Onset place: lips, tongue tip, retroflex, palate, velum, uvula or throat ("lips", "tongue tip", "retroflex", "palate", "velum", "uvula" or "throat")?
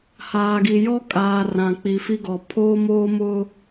throat